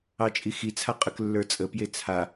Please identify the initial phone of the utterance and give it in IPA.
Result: ɑ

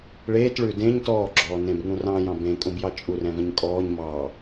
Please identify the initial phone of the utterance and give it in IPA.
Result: ɭ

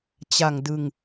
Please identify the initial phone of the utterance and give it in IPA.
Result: t͡ɕ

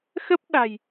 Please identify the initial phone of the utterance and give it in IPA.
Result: x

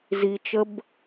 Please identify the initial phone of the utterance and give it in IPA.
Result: z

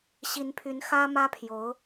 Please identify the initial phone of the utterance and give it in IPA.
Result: ɕ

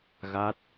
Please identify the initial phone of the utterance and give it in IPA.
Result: ɣ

